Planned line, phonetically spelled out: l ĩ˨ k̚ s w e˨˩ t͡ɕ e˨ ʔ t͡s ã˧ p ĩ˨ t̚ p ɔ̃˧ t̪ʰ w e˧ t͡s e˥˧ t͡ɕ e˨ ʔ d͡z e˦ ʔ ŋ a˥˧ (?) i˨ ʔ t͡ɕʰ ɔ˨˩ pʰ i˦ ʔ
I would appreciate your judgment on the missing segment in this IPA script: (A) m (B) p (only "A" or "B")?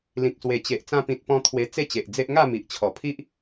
A